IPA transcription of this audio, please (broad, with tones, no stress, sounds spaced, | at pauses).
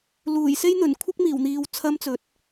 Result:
l uː˨˩ j s e˥ j n̪ ɵ˨˩ n kʷʰ ɪ˥ k̚ m iː˨˩ w n̪ iː˨ w t͡sʰ ɐ˥ m t͡s ɵ˨˥ t̚